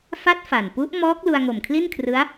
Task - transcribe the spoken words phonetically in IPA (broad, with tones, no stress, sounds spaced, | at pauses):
f a˦˥ t̚ f a˨˩ n p u˦˥ ʔ m ɔː˦˥ k̚ l u˧ a̯ ŋ o˨˩ m kʰ l i˥˩ n kʰ r ɯ˦˥ a̯